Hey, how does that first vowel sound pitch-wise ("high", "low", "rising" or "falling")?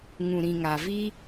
low